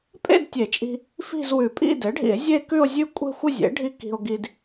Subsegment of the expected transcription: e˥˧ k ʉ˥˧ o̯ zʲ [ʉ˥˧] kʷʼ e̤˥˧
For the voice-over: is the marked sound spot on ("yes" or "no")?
yes